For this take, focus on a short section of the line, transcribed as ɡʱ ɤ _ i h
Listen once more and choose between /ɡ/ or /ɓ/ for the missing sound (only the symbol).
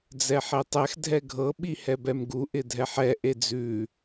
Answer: ɓ